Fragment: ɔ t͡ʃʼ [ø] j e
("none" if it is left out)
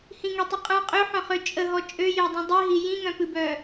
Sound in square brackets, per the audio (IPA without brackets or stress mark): ø